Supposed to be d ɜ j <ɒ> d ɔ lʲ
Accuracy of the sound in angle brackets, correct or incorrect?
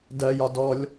correct